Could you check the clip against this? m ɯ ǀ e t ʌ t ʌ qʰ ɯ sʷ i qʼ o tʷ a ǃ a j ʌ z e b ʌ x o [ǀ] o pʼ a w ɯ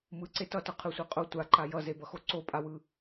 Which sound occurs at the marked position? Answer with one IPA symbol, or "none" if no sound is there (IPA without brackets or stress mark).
ǀ